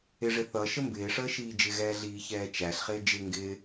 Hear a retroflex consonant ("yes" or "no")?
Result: yes